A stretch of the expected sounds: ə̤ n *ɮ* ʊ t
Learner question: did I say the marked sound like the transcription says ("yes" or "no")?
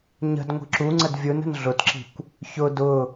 yes